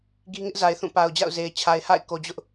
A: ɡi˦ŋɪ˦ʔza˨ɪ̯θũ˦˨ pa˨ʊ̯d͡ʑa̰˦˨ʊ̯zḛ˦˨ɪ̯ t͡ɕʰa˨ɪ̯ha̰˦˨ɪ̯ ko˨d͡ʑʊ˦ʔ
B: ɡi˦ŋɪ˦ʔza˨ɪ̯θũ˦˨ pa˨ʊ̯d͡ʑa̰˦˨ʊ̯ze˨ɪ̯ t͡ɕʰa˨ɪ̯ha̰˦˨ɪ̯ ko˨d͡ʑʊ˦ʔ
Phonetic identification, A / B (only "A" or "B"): B